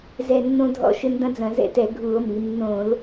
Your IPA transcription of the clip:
z ɛ˧˩ nː õ˦ dʱ ɔ̰˧˩ ʃ ɘ˦ n d ɐ̃˦ d͡z ɐ̃˧˩˧ z ɛ̰˧˩ t ɛ˧˩˧ ɡʱ u˧˩˧ o̯ m i˩˧ nː õ˧˩˧ l

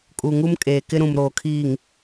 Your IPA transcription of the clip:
kʼ u˨ ŋ u˦ m kʼ eː˨ k ɪ˦ ɾ ũ˨ m ɾ oː˨ kʰ iː˨ ŋ

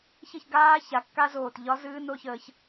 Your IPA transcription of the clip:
ç ɘ˥˨ ç ɡ aː˦˥ ç a˨˩ kː a˦˥ z oː˨˩ t ʎ ɒ˦˥ z ɨː˦˥ n o˦˥ ç əː˧ ç

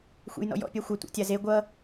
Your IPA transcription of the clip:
xʷ ḛ j n ɔ̰ j ɔ̰ pʲ a xʷ ʌ tʷ ḛ tʲ a z e ɡʷ ʌ

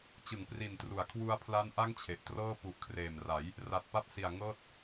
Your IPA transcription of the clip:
t͡ɕ ɯ˩˦ ŋ p r i˨˩ n t r u˩˦ a̯ kʰ w u˧ a̯ pʰ l a˦˥ n ʔ a˥˩ ŋ t͡ɕʰ e˨˩ ʔ t r ɤː˥˩ p u˨˩ ʔ kʰ r eː˨˩ m r a˩˦ j | r a˨˩ t̚ p a˦˥ p̚ s i˨˩ a̯ ŋ ɤː˥˩ t̚

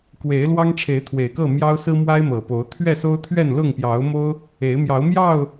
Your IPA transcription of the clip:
k w e˨˦ ɪ̯ l w ɑ˦ ŋ ʈ͡ʂʰ e˨˦ ɪ̯ t̪ʰ w e˨˩ ɪ̯ k ɤ˥˨ m j ɑ˦ ʊ̯ s ɹ̩˦ m w a˦ ɪ̯ m ɤ˨˩ p o˨˦ ʊ̯ t̪ʰ ɥ ɛ˥˨ s o˦ ʊ̯ t̪ʰ ɥ ɛ˥˨ n l ʊ˥˨ ŋ p j ɑ˨˦ ʊ̯ m o˦ ʊ̯ | e˨˦ ɪ̯ m j ɑ˨˦ ʊ̯ m j ɑ˥˨ ʊ̯

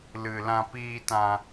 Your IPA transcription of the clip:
l ɨ˨ l ã˧ p iː˧ t ã˧

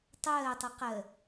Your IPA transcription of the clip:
tˤ ɜː tˤ ɨ q ɜ

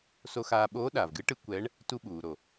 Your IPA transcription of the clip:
s o˧ x aː˧ ɓ oː˧˥ ɗ aː˩ v ɡ ɨ˧˥ ʈ ɨ˧˥ kʷ ɛ˧˥ ɳ | t u˧ ɓ uː˩ ɾ o˩

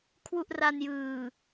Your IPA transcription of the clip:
kʰ w u˥˩ ʔ r a˧ n j ɯː˨˩

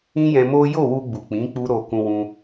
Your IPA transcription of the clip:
ĩ˦ j ɛ̃˧ m o˦ j o˦˨ w u˧ ɡ͡b u˨ k͡p ĩ˨˦ k͡p u˦ ɾ o˧ k ũ˧ w ũ˧

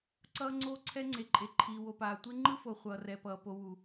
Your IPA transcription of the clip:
ǀ ʌː˦ ŋ͡ǀ oː˦ ǀʰ ɛ˦ ŋ͡ǀ e˨ ǃʼ e˨ ǃʰ iː˨ w o˨ p aː˨ tʷ e˦ ŋ͡ǃ ɯ˦ f o˨ χʷ ʌː˨ r ɛ˨ p ʌː˨ p o˨ w u˨

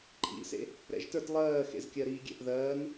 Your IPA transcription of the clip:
ǃʼ ḭ s ḛ | ɾ ɛ̰ ʒ t ə˞ t lˠ ɜː x ḛ z kʲ ɜ ɾ iː ɡʲ ɛ̰ ʔ ð ɜː n

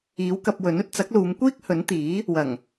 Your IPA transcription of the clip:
iː˨˥ w k ɐ˧ p̚ w ɵ˨˥ n ɵ˨˥ t̚ t͡s ɐ˨˥ k̚ l uː˨˧ m kʷ iː˥ k̚ h ɵ˨˥ n t̪ iː˨˥ | w ɐ˨˩ ŋ

